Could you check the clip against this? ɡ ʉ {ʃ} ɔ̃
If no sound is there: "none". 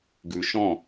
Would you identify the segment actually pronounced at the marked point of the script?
ʃ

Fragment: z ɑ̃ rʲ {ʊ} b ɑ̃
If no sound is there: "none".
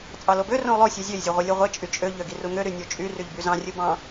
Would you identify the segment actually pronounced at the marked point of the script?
ɯ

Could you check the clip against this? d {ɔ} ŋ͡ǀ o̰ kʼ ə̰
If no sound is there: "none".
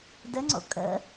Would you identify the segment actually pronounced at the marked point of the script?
ə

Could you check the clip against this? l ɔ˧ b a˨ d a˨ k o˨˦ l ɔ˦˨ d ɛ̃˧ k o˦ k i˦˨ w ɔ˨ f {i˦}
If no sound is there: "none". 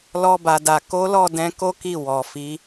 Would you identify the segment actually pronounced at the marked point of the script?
i˨˦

